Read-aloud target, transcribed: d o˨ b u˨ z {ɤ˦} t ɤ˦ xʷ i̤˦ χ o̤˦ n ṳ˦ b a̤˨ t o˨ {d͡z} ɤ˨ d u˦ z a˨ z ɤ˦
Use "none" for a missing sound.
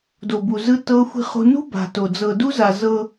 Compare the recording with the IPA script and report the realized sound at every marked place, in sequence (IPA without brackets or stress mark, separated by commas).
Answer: ɯ˦, d͡z